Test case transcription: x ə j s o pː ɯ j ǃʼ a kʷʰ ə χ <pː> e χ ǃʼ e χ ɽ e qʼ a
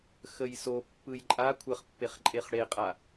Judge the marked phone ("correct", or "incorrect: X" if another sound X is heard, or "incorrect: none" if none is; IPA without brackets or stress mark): correct